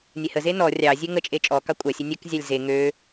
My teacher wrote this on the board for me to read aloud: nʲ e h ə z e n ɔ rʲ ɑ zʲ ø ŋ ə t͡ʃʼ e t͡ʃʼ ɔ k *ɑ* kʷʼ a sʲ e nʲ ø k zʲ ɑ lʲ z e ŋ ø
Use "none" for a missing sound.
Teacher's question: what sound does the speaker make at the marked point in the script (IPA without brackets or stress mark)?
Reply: ɑ